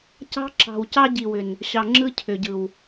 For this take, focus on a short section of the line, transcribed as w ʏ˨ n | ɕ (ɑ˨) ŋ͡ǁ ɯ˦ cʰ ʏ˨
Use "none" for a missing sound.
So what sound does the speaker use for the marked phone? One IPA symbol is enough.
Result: ɑ˨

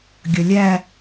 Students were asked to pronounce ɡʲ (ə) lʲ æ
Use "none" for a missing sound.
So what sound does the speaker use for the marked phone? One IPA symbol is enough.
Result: ʌ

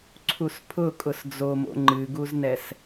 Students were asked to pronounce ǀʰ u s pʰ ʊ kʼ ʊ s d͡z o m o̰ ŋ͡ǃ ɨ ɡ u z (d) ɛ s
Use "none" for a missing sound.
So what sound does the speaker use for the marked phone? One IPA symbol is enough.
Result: n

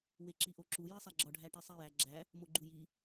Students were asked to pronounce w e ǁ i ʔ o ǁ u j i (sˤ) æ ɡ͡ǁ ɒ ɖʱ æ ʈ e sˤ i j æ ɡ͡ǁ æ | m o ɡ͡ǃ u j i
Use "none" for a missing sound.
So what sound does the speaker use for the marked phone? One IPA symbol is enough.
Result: sˤ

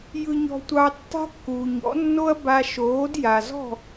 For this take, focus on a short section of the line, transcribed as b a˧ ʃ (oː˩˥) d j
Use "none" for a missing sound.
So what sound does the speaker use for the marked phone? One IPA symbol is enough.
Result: oː˩˥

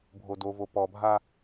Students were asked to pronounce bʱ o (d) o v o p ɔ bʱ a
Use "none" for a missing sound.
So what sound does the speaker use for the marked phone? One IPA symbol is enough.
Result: d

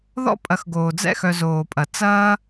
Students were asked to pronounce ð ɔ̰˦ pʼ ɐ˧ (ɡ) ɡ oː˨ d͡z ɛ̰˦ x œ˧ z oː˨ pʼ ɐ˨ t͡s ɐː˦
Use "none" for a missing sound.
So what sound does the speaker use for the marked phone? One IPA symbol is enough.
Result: x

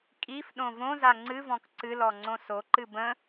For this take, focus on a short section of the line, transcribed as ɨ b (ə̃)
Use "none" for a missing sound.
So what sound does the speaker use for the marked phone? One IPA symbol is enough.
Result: ə̃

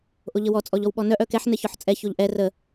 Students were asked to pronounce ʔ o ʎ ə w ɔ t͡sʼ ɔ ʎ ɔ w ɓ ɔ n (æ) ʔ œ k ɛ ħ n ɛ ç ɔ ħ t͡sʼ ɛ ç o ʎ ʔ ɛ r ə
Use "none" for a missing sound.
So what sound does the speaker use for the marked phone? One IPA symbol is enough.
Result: œ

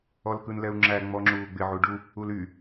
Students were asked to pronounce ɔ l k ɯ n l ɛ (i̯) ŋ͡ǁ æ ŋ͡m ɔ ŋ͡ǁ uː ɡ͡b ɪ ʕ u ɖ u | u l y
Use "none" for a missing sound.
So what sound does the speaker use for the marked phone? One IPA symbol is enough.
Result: u̯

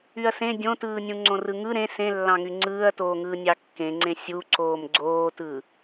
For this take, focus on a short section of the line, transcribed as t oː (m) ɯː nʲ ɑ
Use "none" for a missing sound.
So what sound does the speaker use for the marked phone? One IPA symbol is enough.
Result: ŋ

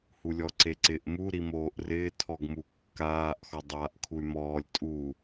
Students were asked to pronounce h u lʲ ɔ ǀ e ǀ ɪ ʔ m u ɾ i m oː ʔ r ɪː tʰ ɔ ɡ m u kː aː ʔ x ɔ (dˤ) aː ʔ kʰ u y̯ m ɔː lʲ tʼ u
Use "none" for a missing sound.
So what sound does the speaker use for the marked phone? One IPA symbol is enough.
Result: dˤ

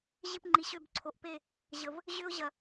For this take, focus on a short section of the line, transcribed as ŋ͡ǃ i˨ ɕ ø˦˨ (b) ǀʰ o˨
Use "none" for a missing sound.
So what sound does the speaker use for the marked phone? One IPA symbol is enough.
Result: b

